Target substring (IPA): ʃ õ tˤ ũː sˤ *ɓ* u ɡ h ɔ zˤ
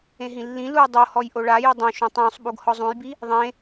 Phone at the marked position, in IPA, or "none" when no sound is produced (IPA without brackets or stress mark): ɓ